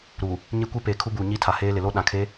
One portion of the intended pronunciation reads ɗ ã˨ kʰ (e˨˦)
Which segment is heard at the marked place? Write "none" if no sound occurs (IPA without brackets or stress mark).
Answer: e˨˦